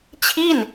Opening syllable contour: falling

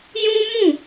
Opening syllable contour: high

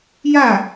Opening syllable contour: falling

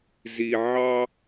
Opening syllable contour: low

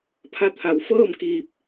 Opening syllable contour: rising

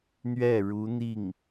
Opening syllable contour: falling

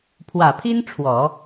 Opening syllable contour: low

